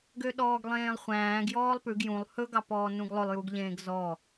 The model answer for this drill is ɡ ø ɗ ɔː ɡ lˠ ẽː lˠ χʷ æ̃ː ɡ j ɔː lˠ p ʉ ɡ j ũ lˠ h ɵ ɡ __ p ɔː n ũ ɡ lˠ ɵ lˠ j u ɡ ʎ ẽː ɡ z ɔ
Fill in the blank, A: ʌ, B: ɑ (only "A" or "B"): B